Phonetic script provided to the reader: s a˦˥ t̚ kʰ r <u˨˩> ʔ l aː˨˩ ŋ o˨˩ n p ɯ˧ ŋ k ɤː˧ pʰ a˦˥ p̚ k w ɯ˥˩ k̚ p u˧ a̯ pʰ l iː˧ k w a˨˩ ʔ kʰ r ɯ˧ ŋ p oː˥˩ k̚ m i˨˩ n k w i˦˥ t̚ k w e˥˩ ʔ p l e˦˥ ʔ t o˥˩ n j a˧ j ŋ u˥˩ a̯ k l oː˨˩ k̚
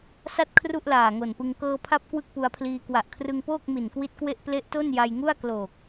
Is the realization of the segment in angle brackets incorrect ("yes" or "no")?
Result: yes